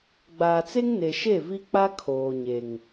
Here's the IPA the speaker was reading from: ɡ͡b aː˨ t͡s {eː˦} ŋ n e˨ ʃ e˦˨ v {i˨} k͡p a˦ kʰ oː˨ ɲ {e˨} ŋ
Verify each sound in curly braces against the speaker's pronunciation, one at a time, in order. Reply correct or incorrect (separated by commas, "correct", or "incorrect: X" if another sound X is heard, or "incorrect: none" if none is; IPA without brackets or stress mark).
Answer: incorrect: e˦, incorrect: i˦, correct